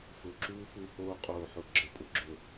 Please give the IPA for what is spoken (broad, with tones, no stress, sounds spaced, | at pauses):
f ʊ˨ ǁ uː˦ f u˦ h oː˦ qʼ oː˨ ħ ʊ˨ ɡ͡ǁ ə˨ pʼ ʊ˦ ɡ͡ǁ ʊ˨